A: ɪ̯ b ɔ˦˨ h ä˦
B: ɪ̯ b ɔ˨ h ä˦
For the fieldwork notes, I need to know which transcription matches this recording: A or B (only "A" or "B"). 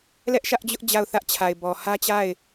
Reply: B